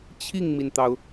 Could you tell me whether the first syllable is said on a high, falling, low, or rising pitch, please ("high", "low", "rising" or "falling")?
falling